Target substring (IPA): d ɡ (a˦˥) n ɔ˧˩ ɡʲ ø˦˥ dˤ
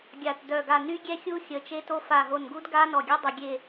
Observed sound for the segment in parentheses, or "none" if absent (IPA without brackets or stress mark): a˦˥